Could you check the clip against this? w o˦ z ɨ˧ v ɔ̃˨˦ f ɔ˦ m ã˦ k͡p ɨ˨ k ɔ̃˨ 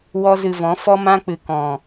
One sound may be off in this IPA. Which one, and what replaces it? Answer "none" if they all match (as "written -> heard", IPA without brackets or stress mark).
o˦ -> ɔ˦